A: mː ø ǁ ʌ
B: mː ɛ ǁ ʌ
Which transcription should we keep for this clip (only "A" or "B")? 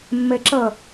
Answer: B